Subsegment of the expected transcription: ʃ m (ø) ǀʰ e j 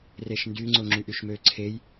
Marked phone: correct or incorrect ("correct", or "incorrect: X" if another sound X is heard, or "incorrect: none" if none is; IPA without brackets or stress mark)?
correct